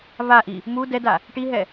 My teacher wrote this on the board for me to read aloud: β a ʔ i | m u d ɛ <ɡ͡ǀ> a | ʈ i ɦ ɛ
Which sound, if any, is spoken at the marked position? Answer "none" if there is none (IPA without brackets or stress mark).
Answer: d